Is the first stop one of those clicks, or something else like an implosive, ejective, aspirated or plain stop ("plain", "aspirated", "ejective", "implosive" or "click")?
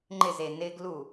click